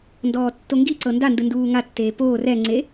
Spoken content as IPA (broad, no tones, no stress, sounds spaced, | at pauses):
n d ɔː tː o ŋ ɡ i ǀ ɤ n d a n d ɯ n d uː ŋ a tː eː p oː r ɛ ŋ͡ǀ e